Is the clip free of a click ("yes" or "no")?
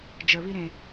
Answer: yes